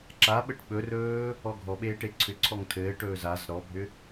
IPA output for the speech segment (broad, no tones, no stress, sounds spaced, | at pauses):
ǁ a ɓ ə ʈ ɓ ɵ r ɵː | ɔ ɡʱ ɔ ɓ eː ʈ e ǀʰ ʏ ǀʰ ɔ ŋ tʰ ɘː ʈ ɵː z a z ɾ ɔ bʱ ʏ